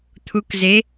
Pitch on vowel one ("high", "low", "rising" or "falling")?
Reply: rising